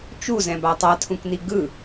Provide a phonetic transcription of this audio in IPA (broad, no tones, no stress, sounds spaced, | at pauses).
t͡ʃ u z ɛ̃ b a tˤ a tʰ ũ k n i ɡ ɯ